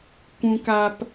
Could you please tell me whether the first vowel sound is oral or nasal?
nasal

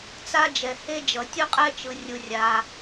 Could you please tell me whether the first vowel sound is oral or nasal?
oral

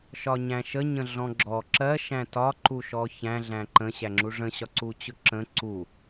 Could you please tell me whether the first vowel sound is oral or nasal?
oral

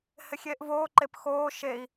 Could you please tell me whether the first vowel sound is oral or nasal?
oral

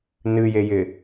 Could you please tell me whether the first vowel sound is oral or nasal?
oral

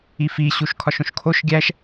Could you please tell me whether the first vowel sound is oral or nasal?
oral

